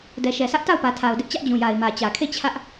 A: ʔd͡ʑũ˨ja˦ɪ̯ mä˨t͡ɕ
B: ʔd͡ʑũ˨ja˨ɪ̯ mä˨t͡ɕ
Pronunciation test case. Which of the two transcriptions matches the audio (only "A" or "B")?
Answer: B